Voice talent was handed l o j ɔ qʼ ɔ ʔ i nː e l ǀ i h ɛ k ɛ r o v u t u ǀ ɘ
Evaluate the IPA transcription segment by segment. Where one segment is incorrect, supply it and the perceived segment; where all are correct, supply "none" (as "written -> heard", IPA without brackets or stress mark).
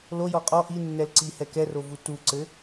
e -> ɛ